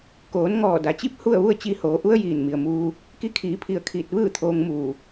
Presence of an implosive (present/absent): absent